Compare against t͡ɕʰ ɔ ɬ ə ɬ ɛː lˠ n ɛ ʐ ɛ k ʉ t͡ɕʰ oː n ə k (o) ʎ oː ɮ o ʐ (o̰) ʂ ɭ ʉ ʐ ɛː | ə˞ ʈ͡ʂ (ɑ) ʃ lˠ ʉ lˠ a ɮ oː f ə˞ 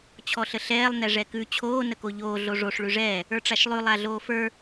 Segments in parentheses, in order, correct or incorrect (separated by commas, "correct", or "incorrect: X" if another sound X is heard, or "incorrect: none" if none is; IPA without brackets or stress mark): correct, incorrect: o, incorrect: a